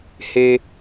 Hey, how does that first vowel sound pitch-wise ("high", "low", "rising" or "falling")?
low